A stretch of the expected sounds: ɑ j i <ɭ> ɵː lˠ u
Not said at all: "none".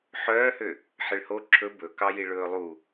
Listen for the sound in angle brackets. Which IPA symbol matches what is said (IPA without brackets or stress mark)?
ɭ